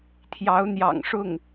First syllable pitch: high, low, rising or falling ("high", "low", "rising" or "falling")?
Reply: rising